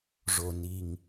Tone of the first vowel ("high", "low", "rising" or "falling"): low